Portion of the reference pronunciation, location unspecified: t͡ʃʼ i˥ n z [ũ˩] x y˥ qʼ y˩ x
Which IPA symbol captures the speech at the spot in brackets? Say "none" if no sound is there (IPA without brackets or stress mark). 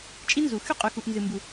u˩